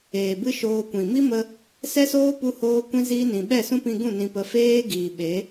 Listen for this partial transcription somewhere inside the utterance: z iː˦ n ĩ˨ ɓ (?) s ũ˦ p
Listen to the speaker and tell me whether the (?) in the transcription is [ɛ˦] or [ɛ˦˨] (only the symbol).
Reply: ɛ˦˨